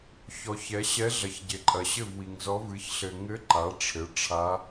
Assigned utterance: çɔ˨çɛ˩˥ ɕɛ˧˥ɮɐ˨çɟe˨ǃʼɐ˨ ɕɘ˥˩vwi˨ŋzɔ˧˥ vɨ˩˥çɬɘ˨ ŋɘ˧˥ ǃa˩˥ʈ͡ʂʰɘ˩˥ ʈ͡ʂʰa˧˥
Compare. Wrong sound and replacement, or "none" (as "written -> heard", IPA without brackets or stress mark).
none